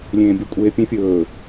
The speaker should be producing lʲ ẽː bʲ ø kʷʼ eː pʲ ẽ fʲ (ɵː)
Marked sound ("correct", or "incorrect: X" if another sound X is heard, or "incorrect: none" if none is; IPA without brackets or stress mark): correct